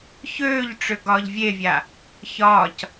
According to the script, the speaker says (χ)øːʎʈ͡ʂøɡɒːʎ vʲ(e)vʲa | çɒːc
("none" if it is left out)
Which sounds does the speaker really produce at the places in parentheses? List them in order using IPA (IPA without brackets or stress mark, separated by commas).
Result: ç, e